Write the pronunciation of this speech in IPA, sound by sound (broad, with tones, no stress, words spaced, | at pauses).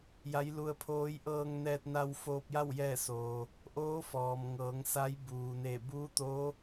ja˧˥jlu˧ə̯pʰoː˧˥j ʔɤː˧ŋnɛː˧t̚ na˧w foː˧p̚ja˥˨w jɛː˥˨soː˩ | ʔoː˧˥fɔː˩mŋɤː˩˧ŋ sa˧˥jbuː˩ne˧˩ buː˧˥t̪oː˧˥